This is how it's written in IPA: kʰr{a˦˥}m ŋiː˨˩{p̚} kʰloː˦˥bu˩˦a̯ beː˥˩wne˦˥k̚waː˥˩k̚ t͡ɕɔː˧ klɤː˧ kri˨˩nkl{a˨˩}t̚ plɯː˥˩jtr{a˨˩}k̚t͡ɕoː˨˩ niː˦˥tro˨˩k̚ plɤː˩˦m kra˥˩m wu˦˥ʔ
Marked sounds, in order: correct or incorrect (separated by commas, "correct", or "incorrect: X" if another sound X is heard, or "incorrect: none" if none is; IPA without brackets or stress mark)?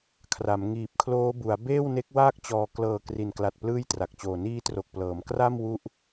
incorrect: a˩˦, correct, correct, correct